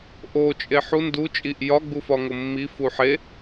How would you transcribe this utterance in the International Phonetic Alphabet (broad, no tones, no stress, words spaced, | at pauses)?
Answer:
ʔot͡ʃʼe ħu ndu t͡ʃʼiʔ jɒɡ͡bu fɒŋomːifu ħe